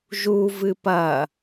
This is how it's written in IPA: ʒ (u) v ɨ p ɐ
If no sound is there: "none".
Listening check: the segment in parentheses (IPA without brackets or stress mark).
u